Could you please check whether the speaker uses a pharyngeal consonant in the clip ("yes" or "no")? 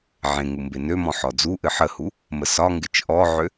yes